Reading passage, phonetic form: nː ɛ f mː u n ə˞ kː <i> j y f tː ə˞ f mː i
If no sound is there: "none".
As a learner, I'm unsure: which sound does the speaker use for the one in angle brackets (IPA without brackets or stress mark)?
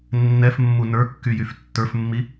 y